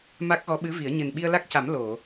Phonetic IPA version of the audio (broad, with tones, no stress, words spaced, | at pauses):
ma˦˥k̚ɣɔ˧˥ɓɨ˧˥vi˨˩˦ə̯ ɲɨ˨˩nɓi˧ə̯la˦˥k̚ca˨˩˦m lo˨˩˨